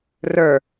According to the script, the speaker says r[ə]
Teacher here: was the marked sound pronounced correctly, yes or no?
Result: no